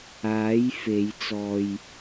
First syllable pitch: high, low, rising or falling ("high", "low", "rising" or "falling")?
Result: rising